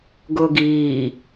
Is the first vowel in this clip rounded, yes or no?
yes